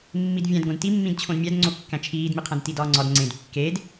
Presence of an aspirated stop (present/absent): present